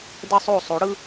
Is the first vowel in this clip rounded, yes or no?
no